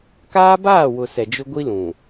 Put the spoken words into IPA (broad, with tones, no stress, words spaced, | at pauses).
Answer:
kaː˦baː˦˨wʊ˨ sɛ˨d͡ʒʊ˦ɡʷi˦ lũ˨